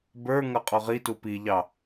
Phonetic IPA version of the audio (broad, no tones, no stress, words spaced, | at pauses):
bə˞ŋʌ qʼɔʁitu piʎɑ